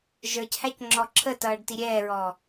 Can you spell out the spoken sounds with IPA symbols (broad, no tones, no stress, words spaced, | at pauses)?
ʒə˞chæc ŋ͡ǁɔǁʰətʌːɖ tiɾʲɛːɹɔː